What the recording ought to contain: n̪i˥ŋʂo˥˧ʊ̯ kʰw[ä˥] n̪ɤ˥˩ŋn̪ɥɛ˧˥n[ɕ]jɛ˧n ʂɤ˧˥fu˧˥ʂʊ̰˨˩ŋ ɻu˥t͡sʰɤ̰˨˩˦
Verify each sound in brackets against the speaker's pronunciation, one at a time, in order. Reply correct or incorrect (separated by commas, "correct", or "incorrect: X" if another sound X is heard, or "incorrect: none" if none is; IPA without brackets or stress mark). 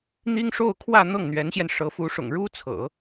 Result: incorrect: ä˥˧, correct